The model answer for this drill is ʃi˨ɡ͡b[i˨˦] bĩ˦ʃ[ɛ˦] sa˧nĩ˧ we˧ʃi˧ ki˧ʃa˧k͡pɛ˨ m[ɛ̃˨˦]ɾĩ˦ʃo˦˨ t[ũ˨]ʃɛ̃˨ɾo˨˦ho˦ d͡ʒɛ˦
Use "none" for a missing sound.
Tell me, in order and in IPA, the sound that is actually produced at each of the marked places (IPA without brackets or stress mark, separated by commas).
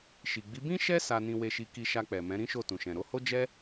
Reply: i˨˦, ɛ˦, ɛ̃˨˦, ũ˨